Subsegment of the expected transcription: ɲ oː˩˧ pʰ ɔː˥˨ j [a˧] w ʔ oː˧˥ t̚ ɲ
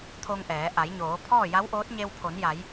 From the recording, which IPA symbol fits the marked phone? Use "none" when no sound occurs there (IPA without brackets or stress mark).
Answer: a˧˥